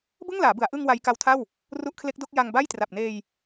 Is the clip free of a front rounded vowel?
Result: yes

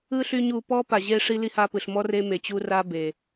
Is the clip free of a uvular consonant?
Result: yes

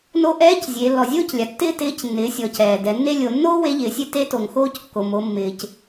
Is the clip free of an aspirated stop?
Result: yes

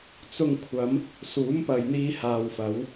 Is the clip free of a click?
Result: yes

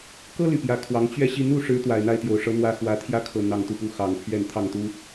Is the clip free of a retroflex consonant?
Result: no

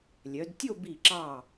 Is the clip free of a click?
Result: no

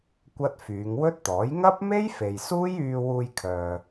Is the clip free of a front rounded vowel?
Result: no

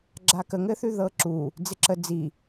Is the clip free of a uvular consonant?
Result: yes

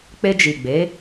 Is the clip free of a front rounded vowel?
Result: yes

